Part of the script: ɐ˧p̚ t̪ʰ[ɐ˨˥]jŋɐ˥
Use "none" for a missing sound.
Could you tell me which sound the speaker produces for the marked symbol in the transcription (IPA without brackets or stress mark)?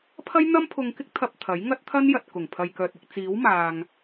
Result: ɐ˨˥